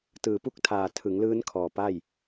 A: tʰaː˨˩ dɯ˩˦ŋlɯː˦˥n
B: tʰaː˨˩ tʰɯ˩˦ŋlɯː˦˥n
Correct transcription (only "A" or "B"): B